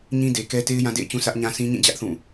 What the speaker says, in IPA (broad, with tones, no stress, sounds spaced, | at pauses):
ɲ ĩ˦ d e˨ k ɛ˦ t e˦ ɪ̯ j ã˦ d ḛ˦˨ ɪ̯ t͡ɕ ũ˦ s ä˦ ʔ ɲ ã˦ s ĩ˦ ɲ ĩ˦˨ d͡ʑ ä˦ ʔ θ ũ˦˨